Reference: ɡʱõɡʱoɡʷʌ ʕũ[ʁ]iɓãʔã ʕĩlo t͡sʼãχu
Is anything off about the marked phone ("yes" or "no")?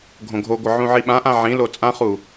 yes